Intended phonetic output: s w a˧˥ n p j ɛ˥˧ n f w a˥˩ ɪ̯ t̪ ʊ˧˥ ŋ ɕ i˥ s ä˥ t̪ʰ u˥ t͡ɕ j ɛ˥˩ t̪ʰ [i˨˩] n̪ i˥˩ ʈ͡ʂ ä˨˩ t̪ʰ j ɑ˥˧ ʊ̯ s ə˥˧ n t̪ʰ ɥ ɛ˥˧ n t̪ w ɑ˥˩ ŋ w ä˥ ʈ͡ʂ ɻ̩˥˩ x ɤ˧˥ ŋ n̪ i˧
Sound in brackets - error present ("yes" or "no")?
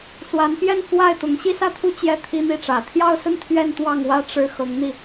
yes